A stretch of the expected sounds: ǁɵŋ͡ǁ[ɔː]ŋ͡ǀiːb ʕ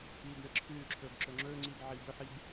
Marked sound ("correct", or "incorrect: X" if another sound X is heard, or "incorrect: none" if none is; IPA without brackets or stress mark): incorrect: ɵː